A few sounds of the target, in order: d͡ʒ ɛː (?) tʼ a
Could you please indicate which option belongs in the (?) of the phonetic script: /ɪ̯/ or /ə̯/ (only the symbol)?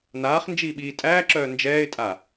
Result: ɪ̯